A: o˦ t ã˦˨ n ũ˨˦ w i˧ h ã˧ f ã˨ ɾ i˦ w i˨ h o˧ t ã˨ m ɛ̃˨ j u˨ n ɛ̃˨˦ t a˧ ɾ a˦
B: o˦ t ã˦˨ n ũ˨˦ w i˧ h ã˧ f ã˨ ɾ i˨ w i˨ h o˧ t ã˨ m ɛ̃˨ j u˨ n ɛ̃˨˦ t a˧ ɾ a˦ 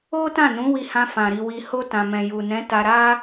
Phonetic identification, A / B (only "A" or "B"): B